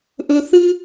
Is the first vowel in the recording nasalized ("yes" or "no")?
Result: no